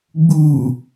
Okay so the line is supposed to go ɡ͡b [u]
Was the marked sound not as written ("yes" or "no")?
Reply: no